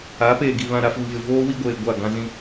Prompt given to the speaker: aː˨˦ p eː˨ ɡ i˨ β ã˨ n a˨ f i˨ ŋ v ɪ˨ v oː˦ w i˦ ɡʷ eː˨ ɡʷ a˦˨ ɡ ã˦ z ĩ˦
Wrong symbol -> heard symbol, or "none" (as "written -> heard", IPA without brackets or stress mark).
n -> ɾ